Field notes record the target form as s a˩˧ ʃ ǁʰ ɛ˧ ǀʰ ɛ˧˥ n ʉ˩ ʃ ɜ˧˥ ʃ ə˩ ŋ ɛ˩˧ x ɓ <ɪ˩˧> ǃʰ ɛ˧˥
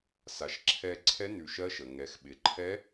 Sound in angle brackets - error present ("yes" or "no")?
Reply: no